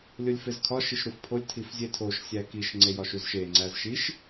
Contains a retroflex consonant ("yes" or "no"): no